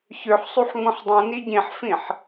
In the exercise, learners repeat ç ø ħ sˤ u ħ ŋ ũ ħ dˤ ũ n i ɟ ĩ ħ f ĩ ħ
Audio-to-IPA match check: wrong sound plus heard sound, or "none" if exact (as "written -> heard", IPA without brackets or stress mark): none